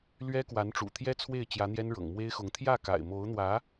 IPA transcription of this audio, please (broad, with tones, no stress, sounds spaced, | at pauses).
l ɥ ɛ˥ k w a˧˥ n ʈ͡ʂ ṵ˨˩ t̪ʰ j ɛ˥ t͡sʰ w e˥˩ ɪ̯ t͡ɕ j ä˧˥ n̪ j ɛ˥ n ɻ ɤ̰˨˩ ŋ m w e˥ ɪ̯ x ʊ˧˥ ŋ t̪ʰ j ä˥˩ k a̰˨˩ ɪ̯ m o˧˥ ʊ̯ n̪ w ä˧˥